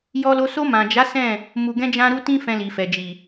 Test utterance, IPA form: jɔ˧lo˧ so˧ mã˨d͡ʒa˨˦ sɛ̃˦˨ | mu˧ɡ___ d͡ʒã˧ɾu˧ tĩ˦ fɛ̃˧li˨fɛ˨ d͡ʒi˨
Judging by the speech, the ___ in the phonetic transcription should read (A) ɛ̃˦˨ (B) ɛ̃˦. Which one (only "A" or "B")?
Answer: B